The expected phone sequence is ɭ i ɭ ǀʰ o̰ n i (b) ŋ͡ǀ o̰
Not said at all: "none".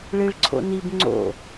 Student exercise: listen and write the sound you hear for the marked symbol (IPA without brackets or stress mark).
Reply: b